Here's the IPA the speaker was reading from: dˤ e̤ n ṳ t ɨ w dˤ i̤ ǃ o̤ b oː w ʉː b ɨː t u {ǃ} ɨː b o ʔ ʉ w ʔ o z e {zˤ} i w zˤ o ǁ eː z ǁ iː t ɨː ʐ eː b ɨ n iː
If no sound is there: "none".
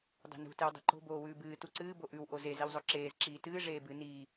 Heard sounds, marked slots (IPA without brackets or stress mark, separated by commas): ǀ, z